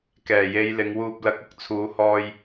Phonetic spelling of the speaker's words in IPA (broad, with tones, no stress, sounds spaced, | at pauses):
k ɛː˨˩ j e˨˧ j l ɪ˨˧ ŋ w uː˧ p̚ l ɐ˨˥ k̚ ʊ˨ k̚ t͡sʰ uː˨˧ h ɔː˧ j